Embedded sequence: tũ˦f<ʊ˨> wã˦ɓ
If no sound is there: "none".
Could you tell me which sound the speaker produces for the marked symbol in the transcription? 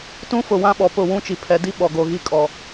ʊ˨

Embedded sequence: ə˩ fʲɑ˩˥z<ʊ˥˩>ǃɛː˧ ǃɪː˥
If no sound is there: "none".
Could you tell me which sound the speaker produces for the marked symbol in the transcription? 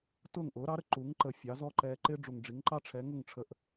ɔ˥˩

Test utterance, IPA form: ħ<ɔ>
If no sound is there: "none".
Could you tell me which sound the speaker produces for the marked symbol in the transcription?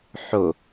o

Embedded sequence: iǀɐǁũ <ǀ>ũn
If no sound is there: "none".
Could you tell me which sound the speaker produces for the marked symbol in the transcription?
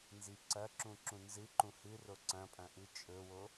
ǁ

